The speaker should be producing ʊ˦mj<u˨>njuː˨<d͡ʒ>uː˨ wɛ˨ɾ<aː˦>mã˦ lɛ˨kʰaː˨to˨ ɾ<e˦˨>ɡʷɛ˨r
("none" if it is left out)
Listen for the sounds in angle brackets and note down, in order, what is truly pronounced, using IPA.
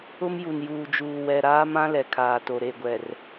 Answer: u˨, d͡ʒ, aː˦, e˦˨

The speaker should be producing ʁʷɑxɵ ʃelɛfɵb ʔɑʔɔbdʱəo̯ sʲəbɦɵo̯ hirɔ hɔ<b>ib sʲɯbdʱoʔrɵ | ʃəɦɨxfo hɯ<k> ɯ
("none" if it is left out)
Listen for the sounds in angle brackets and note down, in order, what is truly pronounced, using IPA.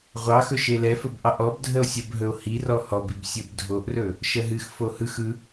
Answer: b, x

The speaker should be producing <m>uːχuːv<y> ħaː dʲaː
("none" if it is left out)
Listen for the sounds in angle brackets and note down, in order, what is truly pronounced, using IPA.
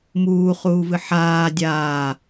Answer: m, ɨ

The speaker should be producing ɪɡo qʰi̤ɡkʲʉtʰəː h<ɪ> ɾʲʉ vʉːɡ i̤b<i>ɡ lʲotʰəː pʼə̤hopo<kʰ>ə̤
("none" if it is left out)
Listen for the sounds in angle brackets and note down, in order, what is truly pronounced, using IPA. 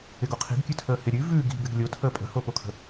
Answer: ɪ, ɪ, kʰ

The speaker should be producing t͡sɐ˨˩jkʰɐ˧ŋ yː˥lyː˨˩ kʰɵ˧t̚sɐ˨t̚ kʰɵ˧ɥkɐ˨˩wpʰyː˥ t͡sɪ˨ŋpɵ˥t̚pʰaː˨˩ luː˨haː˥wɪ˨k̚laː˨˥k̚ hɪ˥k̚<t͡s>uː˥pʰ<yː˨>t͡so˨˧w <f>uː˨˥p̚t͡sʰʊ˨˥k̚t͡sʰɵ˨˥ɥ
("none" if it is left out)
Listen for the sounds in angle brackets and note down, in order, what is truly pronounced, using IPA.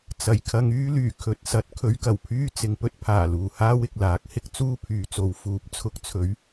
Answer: t͡s, yː˨, f

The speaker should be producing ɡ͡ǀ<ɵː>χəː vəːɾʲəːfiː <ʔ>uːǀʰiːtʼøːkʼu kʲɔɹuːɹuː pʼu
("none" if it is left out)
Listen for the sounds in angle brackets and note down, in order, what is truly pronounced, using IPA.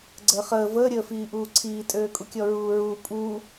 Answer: əː, ʔ

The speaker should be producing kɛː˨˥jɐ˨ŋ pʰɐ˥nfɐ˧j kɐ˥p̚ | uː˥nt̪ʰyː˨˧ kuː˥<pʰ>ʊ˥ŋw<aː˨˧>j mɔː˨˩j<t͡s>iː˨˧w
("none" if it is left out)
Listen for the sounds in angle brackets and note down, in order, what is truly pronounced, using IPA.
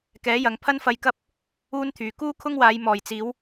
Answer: kʰ, aː˨˧, t͡s

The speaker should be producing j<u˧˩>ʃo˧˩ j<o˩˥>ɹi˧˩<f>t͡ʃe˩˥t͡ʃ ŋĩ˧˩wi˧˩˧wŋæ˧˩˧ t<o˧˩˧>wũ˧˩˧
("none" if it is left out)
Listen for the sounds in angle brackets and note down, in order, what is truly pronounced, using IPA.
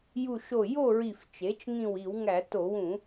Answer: u˧˩, o˥˨, f, o˧˩˧

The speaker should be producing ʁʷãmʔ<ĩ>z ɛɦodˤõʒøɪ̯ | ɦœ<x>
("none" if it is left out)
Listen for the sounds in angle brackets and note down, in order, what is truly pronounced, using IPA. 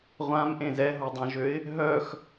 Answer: ẽ, x

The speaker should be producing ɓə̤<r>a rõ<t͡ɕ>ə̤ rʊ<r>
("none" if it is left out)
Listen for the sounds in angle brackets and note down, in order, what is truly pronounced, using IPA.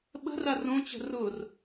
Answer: r, t͡ɕ, r

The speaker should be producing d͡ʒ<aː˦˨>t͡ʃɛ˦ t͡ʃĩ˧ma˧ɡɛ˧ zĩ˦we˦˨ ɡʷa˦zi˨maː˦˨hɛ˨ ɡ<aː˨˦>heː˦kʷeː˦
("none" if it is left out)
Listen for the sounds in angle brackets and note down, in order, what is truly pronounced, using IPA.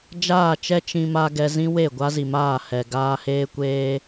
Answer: aː˦˨, aː˧

